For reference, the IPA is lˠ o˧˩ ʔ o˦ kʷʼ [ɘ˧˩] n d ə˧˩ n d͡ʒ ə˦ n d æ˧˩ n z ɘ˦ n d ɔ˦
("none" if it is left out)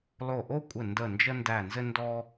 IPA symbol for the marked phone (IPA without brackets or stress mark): ɘ˧˩